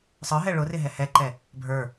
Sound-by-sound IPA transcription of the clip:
sˤə˞ɦɛ ɭʊrɪɦɛ hɛǃɛ | bʱə˞

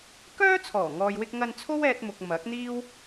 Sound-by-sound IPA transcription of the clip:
kœː˥ t͡sʰɔː˨˩ŋɔː˨jwɪ˧k̚ŋɐ˧n t͡sʰo˥wɛː˧t̚mʊ˨k̚ mɐ˨˥k̚n̪iː˥w

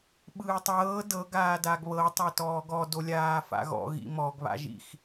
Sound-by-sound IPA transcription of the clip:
ɓɯːtˤɤː dɤ ɡaːdaɡβɤ tˤatɔːɡɔ dolʲaːfa̰ɣɔ̰ ɣḭmɔɡ βa̰ʒḭx

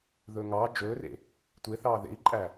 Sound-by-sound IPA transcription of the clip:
ðɵːŋɑː d͡ʒɵːrḛ | tʷe θɑːðḛi̯ǃʼæ

